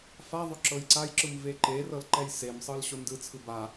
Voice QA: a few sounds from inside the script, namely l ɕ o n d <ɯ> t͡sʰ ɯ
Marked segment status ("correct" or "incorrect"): correct